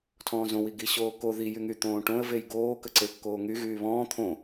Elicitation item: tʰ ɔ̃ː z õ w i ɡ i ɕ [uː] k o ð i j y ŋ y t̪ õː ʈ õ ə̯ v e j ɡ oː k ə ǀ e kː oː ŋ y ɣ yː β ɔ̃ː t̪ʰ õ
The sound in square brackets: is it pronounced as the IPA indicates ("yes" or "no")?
no